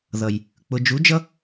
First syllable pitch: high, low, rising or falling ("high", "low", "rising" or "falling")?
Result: low